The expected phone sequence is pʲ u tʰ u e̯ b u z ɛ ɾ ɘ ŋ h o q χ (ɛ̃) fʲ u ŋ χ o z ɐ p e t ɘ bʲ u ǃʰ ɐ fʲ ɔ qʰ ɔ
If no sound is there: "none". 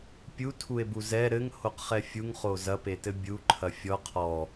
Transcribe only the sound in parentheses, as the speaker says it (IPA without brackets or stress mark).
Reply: ɛ